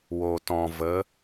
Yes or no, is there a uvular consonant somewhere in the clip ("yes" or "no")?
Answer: no